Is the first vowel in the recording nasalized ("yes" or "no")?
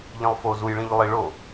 yes